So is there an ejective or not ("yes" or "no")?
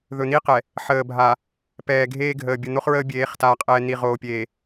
yes